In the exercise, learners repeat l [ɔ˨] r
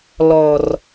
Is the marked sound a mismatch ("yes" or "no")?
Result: no